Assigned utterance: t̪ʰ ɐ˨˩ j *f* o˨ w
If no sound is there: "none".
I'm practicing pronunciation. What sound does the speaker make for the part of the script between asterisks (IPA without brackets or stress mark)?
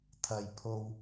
pʰ